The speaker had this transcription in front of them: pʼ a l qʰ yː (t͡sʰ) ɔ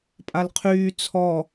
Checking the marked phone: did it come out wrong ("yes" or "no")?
no